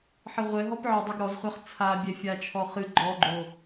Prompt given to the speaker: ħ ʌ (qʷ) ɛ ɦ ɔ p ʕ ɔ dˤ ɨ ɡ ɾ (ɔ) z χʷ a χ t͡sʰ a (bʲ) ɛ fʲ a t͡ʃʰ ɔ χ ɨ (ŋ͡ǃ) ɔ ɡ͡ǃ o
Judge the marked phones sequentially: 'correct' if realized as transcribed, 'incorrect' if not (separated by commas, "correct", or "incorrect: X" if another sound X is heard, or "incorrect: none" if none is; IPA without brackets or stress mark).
incorrect: ʁʷ, correct, correct, incorrect: ɡ͡ǃ